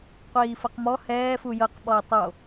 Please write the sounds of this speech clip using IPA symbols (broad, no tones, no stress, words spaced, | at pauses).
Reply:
qʷiːfɤqmɔ hɛː fujɤq ɓɔi̯tˤo